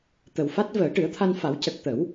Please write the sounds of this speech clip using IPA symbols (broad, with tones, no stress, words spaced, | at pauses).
t̪ə˨˩wfa˦˥t̚ vəː˨˩˦ʈɨ˨˩˦ə̯t̪ʰa˧nfa˨˩˦w cə˨˩k̚t̪ə˨˩˦w